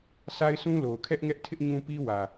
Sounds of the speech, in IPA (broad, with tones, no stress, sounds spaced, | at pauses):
s a˦ ɪ̯ s ũ˦ l o˨ ʊ̯ kʰ ɛ˦ ʔ ŋ ɛ˦ ʔ tʰ ɪ˦ ʔ ɲ ũ˦ p i˦ w ä˨